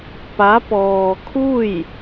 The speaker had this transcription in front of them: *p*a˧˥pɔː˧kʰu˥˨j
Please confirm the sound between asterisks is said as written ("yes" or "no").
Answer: yes